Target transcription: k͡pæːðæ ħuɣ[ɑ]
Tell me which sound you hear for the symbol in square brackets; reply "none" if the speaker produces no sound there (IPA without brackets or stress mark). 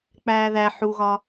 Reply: ɒ